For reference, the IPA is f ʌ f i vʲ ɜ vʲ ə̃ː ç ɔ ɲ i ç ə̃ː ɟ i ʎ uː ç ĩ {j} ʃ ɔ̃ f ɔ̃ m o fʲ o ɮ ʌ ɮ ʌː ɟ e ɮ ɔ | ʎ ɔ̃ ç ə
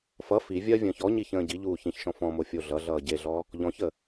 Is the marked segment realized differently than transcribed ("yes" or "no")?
yes